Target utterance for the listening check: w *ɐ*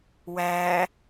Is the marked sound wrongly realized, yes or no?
yes